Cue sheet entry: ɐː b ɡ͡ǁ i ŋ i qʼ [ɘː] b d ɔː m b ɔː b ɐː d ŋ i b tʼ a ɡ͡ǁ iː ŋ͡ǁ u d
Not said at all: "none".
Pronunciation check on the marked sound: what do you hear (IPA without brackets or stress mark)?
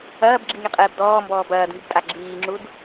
ɘː